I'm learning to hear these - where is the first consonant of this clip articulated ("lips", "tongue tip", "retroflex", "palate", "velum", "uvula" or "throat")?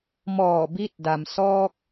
lips